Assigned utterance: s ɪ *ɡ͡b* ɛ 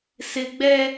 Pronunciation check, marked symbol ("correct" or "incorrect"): correct